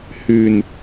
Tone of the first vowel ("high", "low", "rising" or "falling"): low